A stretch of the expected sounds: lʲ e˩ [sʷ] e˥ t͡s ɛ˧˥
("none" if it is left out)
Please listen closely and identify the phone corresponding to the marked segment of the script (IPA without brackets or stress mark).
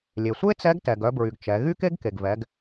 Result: sʷ